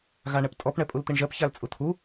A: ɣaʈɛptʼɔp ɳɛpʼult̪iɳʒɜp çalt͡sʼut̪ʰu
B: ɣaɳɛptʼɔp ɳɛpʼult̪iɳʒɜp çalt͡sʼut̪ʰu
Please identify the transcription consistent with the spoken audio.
B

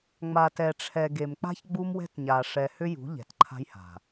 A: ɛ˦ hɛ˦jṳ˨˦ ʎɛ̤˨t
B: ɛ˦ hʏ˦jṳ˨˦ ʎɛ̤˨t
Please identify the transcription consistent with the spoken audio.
B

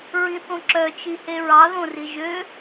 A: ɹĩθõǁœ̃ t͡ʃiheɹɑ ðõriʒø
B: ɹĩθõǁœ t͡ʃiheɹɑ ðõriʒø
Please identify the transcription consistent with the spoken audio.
B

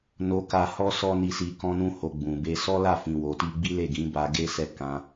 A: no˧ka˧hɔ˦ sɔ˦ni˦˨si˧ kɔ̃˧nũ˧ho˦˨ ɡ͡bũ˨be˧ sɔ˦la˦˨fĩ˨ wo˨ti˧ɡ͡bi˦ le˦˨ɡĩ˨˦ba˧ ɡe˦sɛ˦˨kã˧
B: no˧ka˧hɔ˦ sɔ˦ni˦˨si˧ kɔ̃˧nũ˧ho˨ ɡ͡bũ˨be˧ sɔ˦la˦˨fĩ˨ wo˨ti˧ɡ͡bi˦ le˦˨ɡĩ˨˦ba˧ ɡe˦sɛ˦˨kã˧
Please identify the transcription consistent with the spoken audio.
B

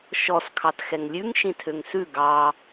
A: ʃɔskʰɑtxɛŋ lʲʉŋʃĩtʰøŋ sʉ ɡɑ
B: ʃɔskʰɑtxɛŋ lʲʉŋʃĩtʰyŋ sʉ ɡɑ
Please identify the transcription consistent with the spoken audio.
A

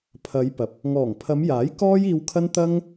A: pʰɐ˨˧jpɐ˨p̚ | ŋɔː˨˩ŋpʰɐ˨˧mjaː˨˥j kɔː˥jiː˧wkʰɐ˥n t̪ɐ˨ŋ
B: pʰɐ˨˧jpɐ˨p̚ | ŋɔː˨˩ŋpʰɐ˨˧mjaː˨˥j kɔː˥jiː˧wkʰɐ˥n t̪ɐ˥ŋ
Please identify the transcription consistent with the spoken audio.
B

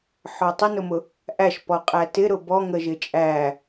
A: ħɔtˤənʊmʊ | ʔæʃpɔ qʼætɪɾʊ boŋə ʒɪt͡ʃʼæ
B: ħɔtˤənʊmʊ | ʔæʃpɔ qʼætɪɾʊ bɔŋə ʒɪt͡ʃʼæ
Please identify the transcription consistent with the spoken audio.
B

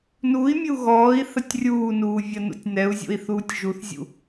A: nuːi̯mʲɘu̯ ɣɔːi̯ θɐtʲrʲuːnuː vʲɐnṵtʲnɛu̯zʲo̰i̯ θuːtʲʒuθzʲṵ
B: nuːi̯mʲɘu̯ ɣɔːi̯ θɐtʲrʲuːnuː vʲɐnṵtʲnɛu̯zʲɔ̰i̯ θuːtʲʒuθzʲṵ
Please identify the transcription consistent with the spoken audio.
A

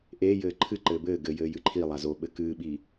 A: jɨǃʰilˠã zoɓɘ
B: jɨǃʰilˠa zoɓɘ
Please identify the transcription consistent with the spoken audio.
B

